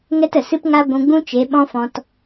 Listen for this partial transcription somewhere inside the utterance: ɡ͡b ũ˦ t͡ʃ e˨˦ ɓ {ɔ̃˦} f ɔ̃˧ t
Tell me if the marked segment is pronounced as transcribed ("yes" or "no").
yes